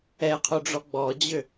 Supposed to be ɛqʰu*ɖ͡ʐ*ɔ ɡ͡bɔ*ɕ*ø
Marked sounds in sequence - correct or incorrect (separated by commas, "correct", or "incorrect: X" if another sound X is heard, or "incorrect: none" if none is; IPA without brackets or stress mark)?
correct, incorrect: d͡ʑ